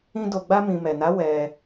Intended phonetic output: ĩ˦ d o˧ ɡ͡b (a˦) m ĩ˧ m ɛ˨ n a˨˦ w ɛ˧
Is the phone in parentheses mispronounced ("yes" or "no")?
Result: no